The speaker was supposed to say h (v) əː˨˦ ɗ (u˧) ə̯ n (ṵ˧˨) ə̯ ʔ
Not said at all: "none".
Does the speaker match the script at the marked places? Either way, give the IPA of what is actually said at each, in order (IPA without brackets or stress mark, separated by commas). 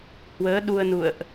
w, u˧, ṵ˧˨